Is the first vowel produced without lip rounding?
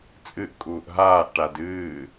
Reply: yes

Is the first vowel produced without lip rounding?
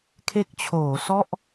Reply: yes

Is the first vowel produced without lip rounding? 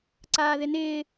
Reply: yes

